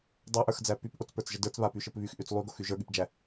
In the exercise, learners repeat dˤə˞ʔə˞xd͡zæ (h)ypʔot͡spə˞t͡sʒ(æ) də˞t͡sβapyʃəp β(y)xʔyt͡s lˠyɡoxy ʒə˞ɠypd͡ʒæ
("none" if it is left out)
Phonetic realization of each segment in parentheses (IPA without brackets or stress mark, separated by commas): p, ə, y